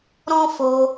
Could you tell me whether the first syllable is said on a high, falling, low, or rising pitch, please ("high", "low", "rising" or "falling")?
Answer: high